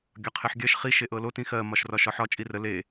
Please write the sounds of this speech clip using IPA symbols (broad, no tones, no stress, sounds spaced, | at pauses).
ɡʲ ɒ qʰ e ħ ɡʲ ɜ ʃ χ i ʃ e ʔ ɤ l o t ĩ x ɜ m ɒ ʃ r ɒ ʃ ɒ ħ ɒ t͡ʃʼ i r ə l e